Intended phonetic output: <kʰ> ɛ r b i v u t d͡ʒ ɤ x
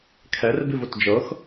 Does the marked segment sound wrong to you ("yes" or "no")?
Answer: no